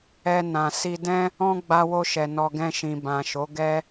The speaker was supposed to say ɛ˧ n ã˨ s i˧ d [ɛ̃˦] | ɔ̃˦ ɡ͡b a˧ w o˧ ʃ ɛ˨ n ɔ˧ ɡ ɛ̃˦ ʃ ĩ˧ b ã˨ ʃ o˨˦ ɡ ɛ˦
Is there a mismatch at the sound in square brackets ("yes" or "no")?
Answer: no